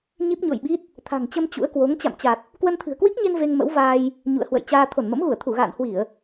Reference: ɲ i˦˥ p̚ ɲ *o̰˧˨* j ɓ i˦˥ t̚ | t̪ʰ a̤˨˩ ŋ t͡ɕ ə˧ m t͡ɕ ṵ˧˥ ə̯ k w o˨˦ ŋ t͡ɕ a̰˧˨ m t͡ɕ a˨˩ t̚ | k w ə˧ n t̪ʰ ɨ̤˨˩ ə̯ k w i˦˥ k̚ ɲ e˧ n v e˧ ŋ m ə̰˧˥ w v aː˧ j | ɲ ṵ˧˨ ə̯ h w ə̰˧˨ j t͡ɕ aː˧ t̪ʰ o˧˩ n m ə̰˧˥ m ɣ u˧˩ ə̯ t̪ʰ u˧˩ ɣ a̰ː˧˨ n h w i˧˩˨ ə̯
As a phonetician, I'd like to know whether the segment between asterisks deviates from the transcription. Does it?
no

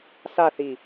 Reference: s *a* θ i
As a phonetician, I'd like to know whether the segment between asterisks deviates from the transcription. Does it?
no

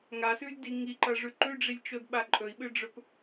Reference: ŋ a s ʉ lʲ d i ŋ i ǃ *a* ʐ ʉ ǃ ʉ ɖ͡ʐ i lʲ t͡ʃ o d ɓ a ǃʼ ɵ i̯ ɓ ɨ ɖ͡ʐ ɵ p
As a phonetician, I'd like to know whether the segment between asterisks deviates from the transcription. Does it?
yes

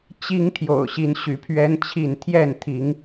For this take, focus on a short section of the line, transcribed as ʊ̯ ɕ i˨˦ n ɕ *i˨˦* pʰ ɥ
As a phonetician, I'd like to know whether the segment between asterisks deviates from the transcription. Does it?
yes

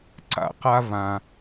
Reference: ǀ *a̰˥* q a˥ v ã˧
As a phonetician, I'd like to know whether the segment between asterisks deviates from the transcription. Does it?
no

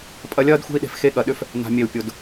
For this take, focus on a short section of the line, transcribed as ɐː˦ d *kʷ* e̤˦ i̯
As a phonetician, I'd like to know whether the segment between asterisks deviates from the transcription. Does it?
yes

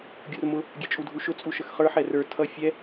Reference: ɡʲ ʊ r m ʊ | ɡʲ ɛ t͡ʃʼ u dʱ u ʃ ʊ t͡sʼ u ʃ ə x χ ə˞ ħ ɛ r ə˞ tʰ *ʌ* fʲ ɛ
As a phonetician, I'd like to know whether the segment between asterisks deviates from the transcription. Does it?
no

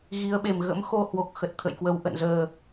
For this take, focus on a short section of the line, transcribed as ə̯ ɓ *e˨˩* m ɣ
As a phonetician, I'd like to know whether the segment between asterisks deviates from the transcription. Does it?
no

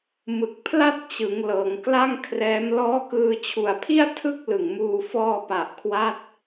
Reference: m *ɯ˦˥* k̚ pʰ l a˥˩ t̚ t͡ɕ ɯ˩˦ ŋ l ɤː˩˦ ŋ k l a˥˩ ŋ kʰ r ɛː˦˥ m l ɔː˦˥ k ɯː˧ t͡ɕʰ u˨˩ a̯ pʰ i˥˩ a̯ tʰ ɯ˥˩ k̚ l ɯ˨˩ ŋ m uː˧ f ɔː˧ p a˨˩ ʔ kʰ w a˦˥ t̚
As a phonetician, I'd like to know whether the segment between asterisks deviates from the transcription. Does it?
yes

